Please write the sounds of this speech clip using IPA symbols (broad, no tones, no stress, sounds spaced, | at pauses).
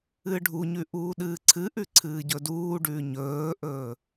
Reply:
ɨː ɖʱ u ɲ ʉ ʔ uː ɗ ɨː ǀʰ ɨ ʔ ʉ ǀʰ ɨː ɟ ɵ d uː ɖ ʉː ɲ ɵː ʔ ɵː